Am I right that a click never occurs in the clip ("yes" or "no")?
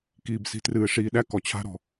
yes